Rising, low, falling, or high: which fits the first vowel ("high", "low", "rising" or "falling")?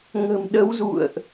low